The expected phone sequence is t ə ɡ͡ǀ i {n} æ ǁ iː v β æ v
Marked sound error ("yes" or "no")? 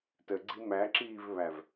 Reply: yes